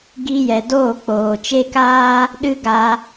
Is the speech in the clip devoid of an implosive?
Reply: no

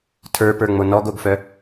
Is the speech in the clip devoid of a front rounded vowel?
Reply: no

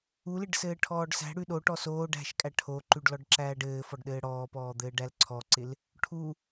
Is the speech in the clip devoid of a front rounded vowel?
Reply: yes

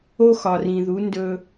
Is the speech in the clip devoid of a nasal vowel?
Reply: no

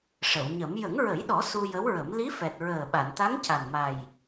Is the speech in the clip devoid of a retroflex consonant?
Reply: no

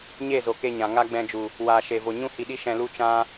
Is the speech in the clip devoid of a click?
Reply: yes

